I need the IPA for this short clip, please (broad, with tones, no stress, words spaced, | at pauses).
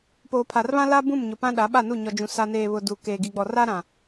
poː˨pʰa˨rβã˦ la˦ bũ˦˨mɲʊ˨ pã˦ɗa˨˦ɓa˦˨nu˦˨ ɲɔ˨d͡ʒũ˨ sa˨neː˨βʊ˨ du˨ keː˨ɡi˨ɡ͡bɔ˨ra˦ ɾã˨